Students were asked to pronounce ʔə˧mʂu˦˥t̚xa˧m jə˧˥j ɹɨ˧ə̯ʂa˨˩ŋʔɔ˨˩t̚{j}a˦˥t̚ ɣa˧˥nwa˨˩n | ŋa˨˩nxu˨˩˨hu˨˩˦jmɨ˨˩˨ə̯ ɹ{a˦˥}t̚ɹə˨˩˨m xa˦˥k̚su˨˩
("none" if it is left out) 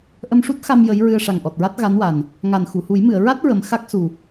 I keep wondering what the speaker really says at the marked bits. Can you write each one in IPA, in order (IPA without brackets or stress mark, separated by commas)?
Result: ɹ, a˦˥